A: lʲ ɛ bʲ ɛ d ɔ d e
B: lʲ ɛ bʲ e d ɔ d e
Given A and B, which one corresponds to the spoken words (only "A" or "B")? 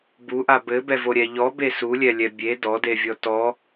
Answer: B